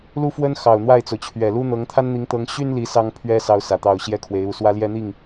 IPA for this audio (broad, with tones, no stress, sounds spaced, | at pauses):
l u˥ f w ə˥ n x ɑ˨˩ ʊ̯ n̪ w a˥˩ ɪ̯ t͡s o˩ ʊ̯ t͡ɕʰ ɥ ɛ˨˩ l u˥ n̪ ɤ˧˥ ŋ t̪ʰ a˥ n n̪ i˧˥ ŋ t̪ ɤ˧˥ ŋ ɕ y˥ n l i˧˥ s ɑ˥ ŋ pʰ ɥ ɛ˥ s ɑ˥ ʊ̯ s ä˨˩ t̪ ɑ˥˧ ʊ̯ ɕ j ɛ˥˩ kʰ w e˧˥ ɪ̯ u˧˥ s w ä˥ l j ɛ˥ n̪ i˥˩ ŋ